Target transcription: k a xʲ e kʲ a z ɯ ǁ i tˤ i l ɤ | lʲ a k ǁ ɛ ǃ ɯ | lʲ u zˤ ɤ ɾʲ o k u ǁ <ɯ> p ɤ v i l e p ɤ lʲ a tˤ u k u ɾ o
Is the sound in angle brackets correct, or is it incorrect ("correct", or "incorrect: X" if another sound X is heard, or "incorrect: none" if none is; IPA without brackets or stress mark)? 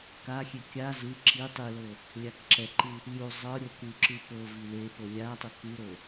correct